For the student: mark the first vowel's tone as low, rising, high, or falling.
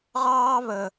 high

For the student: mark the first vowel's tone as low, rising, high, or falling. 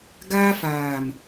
high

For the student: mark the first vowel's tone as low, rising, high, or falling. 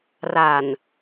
low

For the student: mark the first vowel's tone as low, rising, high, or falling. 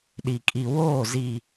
low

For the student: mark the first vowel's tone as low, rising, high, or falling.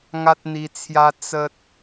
high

